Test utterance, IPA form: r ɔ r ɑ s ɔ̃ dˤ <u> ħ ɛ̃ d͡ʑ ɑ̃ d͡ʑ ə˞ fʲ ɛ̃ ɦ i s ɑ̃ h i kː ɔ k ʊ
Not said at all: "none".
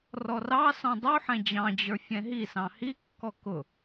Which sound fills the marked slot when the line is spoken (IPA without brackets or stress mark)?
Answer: u